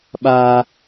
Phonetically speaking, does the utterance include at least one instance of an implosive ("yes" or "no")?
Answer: yes